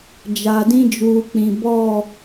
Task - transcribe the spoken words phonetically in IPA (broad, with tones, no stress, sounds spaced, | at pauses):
d͡ʒ a˨ d ĩ˦ d͡ʒ uː˨ k͡p ĩ˨ b ɔ˦˨